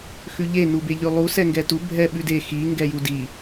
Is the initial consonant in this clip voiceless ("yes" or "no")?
yes